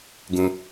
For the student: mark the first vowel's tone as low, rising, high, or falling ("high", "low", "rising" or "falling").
low